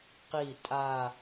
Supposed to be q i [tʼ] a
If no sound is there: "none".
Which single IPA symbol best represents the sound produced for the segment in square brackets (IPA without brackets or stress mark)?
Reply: tʼ